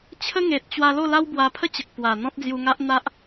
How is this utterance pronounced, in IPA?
t͡ɕʰ ə˦ ŋ e˨ t̚ t͡ɕ w a˧ l o˥˧ l a˦ w b w a˧ pʰ ə˦ t͡ɕ ə˨ k̚ p w a˨˩ n̪ ɔ̃˦ t̚ d͡z j u˧ ŋ a˦ ʔ n̪ a˦ ʔ

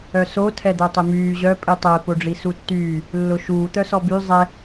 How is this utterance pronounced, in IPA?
œ s o tʰ ɛ d̪ œ tˤ ɪ m yː ʑ œ pʼ i tˤ ɛ p o ɖ͡ʐ i s u tː yː | lː ʊ ʃ uː t̪ œ s ɔ b y zˤ ɛ

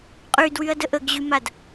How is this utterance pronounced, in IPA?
qʼ y d w y ɐ̯ d ə ʔ ə ɡ ʑ y m a d

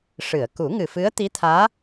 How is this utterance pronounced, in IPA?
ʂ ɨ˨˩˨ ə̯ k u˨˩˦ ŋ ɨ˨˩ f ɨ˧˥ ə̯ t̪ i˧˥ t̪ʰ aː˧˥

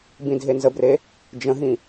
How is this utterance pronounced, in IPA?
b ĩ dʱ e n z ə b r e | d͡ʒ ə̃ ɦ ĩ

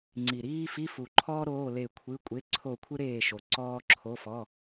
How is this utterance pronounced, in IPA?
ŋ͡ǀ i˨˩ ɾ iː˥ f i˧˥˧ f u˨˩ ǃʰ ɔː˥ ɾ oː˧˥˧ l e˦˨ kʷʰ ɨ˧˥˧ kʷʼ e˧˥˧ ǀʰ o˦˨ kʷʰ ɨ˥ ɾ eː˦˨ ʃ o˨˩ ǀ ɔː˥ ǁʰ o˧˥˧ f ɔ˧˥˧

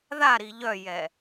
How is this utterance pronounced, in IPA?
ð a ɾ i ʎ œ j ɛ

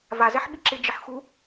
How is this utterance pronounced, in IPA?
v a z ɛ ħ ɓ i ǁ ɪ d͡ʒ ɪ ħ x u

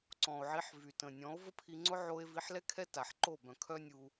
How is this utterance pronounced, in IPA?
ǀ ɔ̃˨ o̯ ʕ i˧ ħ v y˨ t ə̃˨ nʲ ɔ̃˨˦ o̯ v ə˦ pʰ i˧ ŋ͡ǀ ʊ˦ ʕ o˧ e̯ v i˨˦ ħ l ɛ˦ kʰ ɛ˦ t a˨ ħ ǃ o˦˨ b œ̃˨ kʰ œ˦ nʲ u˧

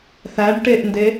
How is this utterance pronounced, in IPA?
θ æ ɖ ʈ e ʔ n d e

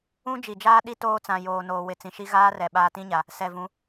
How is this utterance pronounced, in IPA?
ũ˦ d͡ʒ i˨ d͡ʒ aː˦ ɗ i˦ t oː˦ t͡s ã˨ j oː˨ n oː˨ w ɪ˨ t͡s ĩ˨ ʃ i˦ ɣ aː˦ r ɛ˨ ɓ aː˦ t ĩ˦ ɲ a˨ | s ɛ˨ v ũ˨˦

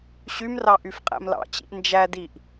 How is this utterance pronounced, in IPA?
ɕ y m r ɑ ʔ y f qʼ æ̰ m l ɑ̰ t͡ɕ ḭ ʔ n d͡ʒ æ d i ʔ

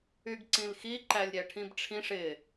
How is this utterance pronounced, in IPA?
y ɡ ǀ ĩ l x i ǃ æ lʲ ɾʲ æ ʈʰ ĩ b ʈ͡ʂʰ ĩ ʂ ɪ

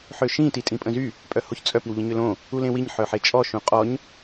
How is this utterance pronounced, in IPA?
ħ ø ʃ ĩ t i tʼ ĩ pʼ ə̃ z y | pʼ œ h o ç t͡sʼ œ p i w ʎ ə̃ ɲ ø l õ | u l ẽ w i ɲ ħ œ ħ e t͡ʃʼ ɔ ʃ ũ qʼ ɔ ɲ

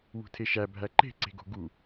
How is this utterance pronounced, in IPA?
w ṳ tʰ e ʃ æ bʱ æ ǃ e̤ ǀ e̤ ɡ o̤ ɡ u

